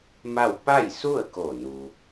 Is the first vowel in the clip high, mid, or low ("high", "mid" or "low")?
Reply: low